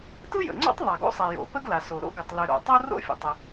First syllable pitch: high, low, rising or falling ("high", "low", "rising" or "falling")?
high